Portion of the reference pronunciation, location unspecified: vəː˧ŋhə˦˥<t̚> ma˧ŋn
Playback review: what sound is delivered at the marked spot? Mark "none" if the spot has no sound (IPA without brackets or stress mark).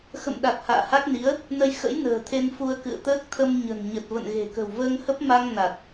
p̚